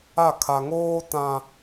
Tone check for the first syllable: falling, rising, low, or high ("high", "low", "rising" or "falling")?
falling